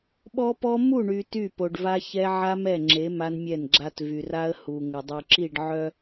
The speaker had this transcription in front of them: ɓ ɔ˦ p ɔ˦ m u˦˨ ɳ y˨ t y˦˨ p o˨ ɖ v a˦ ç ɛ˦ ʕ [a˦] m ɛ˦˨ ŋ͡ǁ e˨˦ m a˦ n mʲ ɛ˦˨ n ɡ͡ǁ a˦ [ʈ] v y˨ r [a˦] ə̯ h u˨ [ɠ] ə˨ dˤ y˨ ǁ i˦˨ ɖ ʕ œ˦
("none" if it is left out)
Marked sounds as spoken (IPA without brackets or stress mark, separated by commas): a˦, t, a˦, ŋ